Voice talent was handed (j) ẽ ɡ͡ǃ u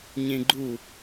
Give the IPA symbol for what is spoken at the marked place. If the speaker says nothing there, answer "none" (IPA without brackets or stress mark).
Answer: ɲ